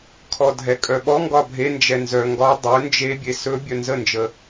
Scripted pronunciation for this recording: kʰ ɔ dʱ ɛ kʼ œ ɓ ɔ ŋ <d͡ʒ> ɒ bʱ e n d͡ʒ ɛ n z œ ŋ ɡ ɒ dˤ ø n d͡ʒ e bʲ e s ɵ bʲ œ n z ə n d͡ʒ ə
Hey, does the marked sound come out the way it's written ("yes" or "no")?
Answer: no